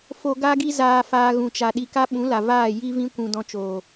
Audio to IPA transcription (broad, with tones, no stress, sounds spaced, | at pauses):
f o˧ ɡ a˦ ɡ i˦ z aː˧ f aː˧ ɣ ũ˨ t͡ʃ a˨ ɗ i˧ k a˦ ɓ ũ˨˦ l a˨ v aː˦˨ j i˦ v ĩ˦ kʷ ũ˧ d ɔ̃˧ t͡ʃ oː˨